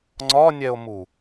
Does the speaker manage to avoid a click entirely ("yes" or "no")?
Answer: no